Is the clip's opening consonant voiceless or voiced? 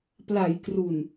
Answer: voiceless